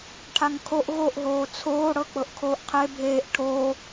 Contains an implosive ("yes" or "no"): no